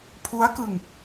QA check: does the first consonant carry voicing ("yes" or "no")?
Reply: no